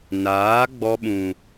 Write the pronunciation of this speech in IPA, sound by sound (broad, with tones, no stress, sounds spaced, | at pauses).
n aː˨˦ ɡ͡b ɔ˧ ɓ ũ˨